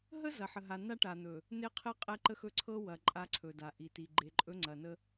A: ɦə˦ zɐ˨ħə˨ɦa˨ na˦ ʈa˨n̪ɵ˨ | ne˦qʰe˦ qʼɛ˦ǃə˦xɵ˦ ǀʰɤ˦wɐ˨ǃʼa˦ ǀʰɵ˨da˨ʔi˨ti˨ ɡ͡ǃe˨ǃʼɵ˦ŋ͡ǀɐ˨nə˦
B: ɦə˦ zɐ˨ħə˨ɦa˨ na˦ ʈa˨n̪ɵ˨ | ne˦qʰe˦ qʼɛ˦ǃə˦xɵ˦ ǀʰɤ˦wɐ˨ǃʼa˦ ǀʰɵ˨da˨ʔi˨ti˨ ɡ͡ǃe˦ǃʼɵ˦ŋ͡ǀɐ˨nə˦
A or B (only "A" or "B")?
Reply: A